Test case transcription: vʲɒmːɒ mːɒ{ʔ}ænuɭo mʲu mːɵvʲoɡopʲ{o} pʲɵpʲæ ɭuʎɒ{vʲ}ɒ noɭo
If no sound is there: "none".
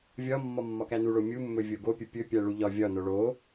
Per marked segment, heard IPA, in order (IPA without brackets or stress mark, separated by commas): k, ɵ, vʲ